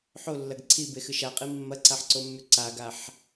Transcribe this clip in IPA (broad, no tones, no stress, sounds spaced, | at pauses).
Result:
ħ o lː ɐ ɡ ǀʰ i b e x ɨ ʃ a qʼ i mː ɐ ǀ a ħ ǀ o mː ʉ ǀ a ɡ a ħ